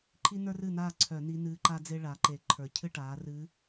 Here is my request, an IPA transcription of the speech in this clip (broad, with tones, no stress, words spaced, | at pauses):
ǃʰi˥nə˞˥rɨː˥˨naː˥˨ ǀʰœ˧˩˧ ni˧˥nɨː˧˥ǃa˥d͡ze˥ ɭa˩˥ǃe˧˩˧ ǃʰə˞˨˩ cʰɨ˥˨ʈaː˩˥rɨː˧˥